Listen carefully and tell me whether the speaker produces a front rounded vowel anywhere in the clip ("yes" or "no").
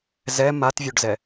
yes